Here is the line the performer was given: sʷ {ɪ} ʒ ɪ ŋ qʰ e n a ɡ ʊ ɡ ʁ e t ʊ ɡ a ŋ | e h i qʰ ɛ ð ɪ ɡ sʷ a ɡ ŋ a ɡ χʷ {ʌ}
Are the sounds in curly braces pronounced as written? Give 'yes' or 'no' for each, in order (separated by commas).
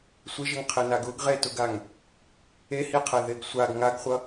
yes, yes